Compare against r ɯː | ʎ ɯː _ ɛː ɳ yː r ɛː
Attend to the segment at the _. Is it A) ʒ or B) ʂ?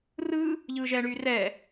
A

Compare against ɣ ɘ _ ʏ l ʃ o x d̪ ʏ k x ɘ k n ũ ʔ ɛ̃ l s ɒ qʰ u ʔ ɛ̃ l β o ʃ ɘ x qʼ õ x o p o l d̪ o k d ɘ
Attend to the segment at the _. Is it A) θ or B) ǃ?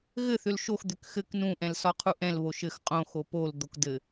A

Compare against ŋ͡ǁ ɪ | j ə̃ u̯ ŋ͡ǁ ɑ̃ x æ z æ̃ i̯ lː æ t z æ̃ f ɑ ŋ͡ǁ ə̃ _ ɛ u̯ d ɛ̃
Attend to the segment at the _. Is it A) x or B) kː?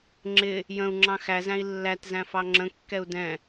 B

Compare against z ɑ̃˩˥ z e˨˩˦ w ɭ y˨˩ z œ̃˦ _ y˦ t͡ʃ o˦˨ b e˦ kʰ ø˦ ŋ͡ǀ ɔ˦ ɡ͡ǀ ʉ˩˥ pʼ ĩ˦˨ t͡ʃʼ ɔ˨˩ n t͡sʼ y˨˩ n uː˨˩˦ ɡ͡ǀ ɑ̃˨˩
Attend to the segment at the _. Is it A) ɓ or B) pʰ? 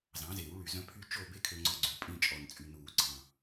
B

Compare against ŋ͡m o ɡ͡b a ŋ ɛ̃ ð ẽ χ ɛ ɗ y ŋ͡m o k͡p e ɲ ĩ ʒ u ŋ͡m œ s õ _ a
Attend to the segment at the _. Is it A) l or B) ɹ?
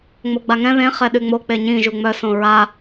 B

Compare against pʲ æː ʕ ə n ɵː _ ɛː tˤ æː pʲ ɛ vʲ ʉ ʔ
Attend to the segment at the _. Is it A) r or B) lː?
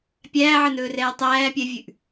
A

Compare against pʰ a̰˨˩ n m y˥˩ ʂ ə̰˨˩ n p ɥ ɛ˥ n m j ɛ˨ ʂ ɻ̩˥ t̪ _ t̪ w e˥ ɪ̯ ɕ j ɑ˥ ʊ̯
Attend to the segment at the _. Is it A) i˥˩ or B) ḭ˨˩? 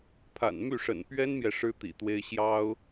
B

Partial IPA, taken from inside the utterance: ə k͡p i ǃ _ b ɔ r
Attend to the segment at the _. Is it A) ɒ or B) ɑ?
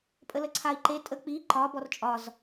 A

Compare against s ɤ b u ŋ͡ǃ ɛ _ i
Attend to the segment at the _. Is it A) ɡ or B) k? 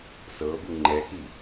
B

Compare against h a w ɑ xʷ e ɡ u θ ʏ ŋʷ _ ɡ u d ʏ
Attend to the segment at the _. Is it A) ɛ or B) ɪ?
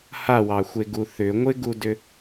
B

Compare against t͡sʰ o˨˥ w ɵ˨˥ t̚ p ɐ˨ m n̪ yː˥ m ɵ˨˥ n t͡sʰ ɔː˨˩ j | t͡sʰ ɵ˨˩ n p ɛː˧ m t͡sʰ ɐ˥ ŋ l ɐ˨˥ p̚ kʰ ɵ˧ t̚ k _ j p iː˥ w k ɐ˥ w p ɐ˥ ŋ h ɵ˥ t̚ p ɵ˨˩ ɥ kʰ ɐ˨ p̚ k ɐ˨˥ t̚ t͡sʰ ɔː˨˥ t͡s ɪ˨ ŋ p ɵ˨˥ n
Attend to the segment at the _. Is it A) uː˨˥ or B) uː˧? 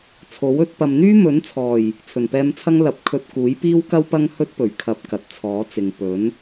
A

